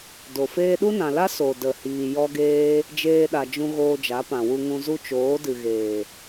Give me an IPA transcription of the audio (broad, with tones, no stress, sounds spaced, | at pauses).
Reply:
d o˨ f eː˧ ɗ u˦ n ã˨ l a˦ s o˨ d ə˨ h iː˨ j ɔ˦ ɡ eː˦ | d͡ʒ eː˧ ɗ a˨ d͡ʒ ũ˧ ɣ oː˧ d͡ʒ a˨˦ p ã˨ w u˧ ŋ ũ˧ z u˦ t͡ʃ oː˨˦ d ɨ˨ ɣ eː˨